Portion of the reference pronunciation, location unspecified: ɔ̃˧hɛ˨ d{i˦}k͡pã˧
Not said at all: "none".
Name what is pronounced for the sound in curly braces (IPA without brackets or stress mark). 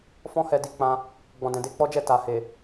i˧